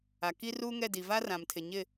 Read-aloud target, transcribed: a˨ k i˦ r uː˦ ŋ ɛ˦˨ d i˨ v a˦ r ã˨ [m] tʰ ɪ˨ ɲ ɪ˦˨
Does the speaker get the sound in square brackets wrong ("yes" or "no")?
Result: no